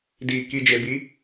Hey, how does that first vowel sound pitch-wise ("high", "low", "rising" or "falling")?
low